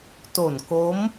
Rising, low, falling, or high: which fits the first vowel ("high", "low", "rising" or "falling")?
low